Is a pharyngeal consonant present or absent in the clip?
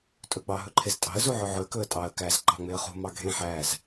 present